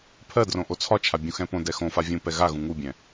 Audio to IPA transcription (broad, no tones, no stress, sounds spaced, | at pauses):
pʰ ɜ d r õ ʔ o t͡sʰ ɒ t͡ʃʰ a bʲ ũ x ɛ̃ p õ d ɛ x õ f a vʲ ũ p ɛ ɣ a ɣ ũ ŋ u bʲ ɛ̃